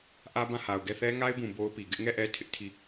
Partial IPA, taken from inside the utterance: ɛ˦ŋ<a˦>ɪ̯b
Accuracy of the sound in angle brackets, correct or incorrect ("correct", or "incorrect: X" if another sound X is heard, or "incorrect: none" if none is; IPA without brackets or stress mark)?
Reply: correct